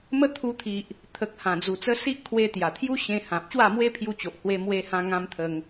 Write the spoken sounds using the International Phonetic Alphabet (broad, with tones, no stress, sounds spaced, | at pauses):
m ə˦ t̪ʰ u˧ t̪ʰ i˨ ʔ | t̪ʰ ə˨ k̚ h ã˨˩ d͡z u˨˩ t͡s ə˧ s i˦ ʔ kʰ w e˧ t̪ j a˨˩ t̪ʰ j u˦ ɕ ẽ˧ h ã˨ p̚ ɕ w a˥˧ m w e˦ pʰ j u˧ t͡ɕ o˨ ʔ h w e˧ m w e˧ h ã˧ ŋ ã˧ m t̪ʰ ə˧ ŋ